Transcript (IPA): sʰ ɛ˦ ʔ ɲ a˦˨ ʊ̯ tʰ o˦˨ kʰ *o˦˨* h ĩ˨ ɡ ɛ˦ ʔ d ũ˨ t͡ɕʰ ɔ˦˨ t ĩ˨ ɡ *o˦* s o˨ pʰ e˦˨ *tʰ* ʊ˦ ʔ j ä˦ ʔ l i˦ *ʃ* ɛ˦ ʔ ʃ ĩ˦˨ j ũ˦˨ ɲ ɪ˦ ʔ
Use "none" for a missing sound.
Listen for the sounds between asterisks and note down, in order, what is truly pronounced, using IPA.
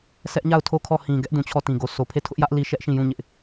ɔ˦˨, o˨, tʰ, ʃ

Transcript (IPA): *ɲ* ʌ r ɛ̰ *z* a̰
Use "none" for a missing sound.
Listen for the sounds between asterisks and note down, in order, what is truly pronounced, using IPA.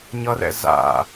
ɲ, z

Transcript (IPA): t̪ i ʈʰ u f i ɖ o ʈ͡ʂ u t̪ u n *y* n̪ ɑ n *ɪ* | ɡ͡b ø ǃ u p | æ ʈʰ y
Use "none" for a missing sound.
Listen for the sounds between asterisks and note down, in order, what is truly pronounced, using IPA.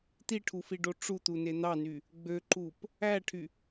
e, y

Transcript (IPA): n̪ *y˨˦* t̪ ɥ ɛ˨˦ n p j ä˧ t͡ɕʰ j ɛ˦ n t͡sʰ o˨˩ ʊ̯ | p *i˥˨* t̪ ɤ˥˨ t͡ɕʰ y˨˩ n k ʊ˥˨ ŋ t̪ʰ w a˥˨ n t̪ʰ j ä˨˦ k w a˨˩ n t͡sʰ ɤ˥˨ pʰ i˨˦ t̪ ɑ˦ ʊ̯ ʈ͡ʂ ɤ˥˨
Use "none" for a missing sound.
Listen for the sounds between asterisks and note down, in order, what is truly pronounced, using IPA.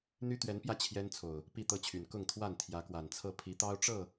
y˦, i˥˨

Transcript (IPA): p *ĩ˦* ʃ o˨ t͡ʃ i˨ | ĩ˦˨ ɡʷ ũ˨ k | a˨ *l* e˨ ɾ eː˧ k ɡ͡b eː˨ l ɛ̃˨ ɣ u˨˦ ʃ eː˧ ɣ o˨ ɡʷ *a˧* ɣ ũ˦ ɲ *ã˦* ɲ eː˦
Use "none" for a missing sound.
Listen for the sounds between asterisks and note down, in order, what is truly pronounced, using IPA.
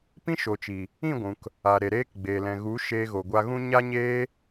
ĩ˦, ɾ, a˧, a˦

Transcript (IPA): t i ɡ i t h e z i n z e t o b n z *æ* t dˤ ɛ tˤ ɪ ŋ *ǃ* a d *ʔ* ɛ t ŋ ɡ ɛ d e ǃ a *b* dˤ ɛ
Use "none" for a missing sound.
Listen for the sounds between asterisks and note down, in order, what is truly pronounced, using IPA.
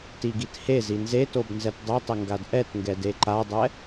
ɛ, ɡ, ʔ, none

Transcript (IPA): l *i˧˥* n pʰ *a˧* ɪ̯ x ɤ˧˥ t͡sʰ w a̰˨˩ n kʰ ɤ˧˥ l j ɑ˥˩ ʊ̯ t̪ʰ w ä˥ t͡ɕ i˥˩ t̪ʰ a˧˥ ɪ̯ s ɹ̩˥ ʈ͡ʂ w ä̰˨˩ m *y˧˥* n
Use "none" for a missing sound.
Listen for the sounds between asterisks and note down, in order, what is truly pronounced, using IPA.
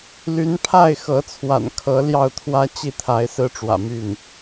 y˧˥, a˥˩, y˥˩

